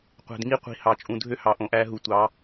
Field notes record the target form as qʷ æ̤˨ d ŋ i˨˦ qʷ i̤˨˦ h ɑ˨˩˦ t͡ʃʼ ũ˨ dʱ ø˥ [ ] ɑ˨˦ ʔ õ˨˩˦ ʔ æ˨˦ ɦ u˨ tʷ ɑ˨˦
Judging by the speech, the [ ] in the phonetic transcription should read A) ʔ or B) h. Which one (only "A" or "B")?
B